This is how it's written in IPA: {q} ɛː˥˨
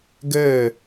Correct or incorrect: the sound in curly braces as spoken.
incorrect: ɡ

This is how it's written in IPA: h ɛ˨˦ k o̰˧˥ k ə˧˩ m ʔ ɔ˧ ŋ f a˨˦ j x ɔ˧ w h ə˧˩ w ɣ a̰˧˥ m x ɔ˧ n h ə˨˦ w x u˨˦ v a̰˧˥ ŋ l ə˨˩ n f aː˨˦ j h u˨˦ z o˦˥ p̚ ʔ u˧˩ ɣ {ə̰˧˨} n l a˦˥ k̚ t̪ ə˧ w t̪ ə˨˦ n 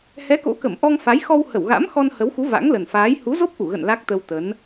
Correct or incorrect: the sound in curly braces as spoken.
correct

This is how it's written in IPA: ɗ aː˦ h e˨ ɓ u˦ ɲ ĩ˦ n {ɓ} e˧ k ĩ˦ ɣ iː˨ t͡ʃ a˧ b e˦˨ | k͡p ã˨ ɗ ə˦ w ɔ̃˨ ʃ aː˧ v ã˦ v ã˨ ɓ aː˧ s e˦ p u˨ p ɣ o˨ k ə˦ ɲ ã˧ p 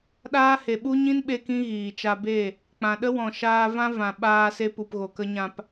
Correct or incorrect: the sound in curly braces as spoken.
correct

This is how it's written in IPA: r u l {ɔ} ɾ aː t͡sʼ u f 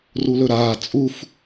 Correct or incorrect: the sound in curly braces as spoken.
incorrect: ɵ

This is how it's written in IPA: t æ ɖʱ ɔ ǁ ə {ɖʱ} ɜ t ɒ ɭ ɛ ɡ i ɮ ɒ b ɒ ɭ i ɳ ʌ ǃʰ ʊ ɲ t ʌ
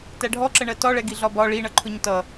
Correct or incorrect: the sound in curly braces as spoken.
incorrect: ɳ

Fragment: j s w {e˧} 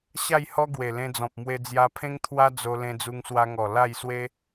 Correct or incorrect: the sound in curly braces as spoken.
incorrect: e˦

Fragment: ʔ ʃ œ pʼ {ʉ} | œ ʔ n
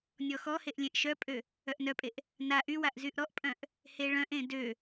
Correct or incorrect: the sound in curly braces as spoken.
incorrect: ø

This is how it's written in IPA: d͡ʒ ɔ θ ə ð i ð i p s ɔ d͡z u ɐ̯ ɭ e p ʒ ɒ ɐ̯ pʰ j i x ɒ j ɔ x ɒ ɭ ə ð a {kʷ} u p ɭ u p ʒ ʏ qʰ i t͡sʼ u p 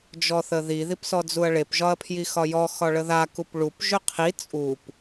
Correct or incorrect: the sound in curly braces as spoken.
incorrect: k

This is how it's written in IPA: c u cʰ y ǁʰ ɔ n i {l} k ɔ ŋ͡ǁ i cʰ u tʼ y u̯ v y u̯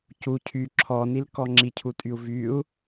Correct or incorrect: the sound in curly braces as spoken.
correct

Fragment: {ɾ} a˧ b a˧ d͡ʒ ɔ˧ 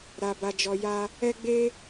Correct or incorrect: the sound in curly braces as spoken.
correct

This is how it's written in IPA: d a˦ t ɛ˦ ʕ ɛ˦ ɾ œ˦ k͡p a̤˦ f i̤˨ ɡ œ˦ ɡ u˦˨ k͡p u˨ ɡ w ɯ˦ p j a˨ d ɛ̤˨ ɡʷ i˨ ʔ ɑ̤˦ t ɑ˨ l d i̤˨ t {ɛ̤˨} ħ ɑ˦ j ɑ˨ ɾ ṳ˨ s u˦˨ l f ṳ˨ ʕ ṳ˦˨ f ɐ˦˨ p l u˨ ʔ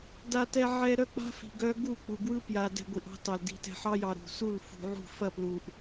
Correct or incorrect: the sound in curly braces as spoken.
correct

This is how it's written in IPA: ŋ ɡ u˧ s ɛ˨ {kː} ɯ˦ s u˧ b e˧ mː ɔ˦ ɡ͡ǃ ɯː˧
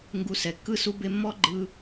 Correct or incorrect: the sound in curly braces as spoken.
correct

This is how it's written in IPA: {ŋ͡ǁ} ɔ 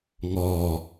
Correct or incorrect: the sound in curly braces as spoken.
incorrect: ŋ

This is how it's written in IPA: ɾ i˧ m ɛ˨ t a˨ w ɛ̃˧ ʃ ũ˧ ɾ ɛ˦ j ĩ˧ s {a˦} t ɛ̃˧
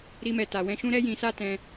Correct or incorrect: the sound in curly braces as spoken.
correct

